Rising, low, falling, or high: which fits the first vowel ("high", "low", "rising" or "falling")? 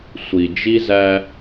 low